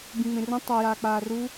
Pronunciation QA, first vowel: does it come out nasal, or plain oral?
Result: nasal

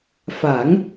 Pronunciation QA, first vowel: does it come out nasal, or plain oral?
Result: oral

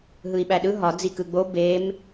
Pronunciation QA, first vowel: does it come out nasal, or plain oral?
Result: oral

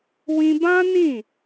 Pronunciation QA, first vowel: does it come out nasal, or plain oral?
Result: nasal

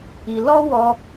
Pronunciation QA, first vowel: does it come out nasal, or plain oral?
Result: oral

